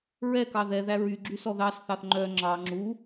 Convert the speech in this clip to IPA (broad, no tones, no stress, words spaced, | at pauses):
ɹɛkɑ ðɛðæ ɹyɡ͡ǁy sɔðɑsθɑθ ŋ͡ǃœ ŋ͡ǁɑ ŋ͡ǁu